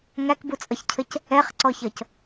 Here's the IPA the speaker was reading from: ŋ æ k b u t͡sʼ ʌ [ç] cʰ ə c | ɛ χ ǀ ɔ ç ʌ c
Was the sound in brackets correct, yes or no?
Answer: yes